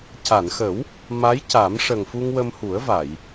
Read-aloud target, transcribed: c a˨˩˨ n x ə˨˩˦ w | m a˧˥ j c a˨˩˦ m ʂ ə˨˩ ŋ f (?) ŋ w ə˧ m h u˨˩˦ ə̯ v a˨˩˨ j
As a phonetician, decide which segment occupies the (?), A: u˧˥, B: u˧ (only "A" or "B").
B